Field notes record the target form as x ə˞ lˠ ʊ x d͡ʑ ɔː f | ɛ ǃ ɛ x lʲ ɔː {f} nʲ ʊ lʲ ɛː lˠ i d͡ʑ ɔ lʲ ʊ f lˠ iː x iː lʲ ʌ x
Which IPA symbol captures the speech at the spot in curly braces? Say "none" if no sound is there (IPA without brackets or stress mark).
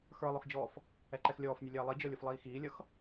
f